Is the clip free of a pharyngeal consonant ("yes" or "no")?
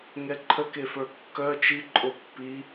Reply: yes